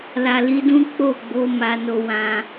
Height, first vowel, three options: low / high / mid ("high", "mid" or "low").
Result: low